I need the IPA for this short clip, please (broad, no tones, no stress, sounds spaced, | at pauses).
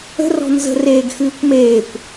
ə̤ r ɔ̤ n z ə̤ r eː ɡ x ɨː kʷ m eː kʷ